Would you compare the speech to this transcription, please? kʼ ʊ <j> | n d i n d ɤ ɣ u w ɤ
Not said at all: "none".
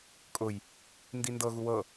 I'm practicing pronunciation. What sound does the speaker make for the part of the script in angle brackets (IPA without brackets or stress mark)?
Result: j